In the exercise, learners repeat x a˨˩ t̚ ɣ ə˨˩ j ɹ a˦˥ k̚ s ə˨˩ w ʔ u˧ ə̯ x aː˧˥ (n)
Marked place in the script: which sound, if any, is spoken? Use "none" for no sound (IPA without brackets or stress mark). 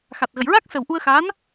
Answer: n